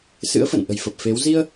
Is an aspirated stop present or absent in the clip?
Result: absent